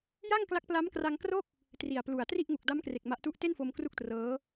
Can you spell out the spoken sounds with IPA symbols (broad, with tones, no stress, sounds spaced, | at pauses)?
j a˥˩ ŋ k l a˦˥ k̚ p l a˦˥ m k r a˧ ŋ k r o˥˩ k̚ | t r i˨˩ a̯ p l u˨˩ a̯ t r i˥˩ ʔ ŋ u˨˩ k̚ d a˦˥ m k r e˨˩ k̚ m a˦˥ ʔ t u˥˩ ʔ t e˥˩ n f o˧ m k r u˥˩ k̚ t r ɤː˦˥